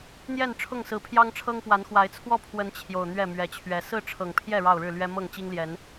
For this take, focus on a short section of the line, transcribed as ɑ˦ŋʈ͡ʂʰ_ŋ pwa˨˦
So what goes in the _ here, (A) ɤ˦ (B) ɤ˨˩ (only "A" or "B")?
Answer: A